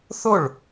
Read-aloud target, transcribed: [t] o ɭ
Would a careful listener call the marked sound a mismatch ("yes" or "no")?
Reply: yes